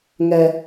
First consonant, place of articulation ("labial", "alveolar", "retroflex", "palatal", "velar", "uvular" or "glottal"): velar